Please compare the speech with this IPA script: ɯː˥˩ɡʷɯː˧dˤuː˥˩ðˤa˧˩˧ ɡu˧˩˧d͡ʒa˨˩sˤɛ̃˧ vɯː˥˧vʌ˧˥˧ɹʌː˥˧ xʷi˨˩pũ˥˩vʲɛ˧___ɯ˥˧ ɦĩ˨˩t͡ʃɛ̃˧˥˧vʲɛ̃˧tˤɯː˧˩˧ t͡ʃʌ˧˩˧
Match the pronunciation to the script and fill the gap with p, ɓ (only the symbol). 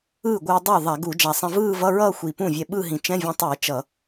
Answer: ɓ